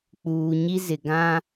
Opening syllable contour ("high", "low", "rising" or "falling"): low